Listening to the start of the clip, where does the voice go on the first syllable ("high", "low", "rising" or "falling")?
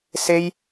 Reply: high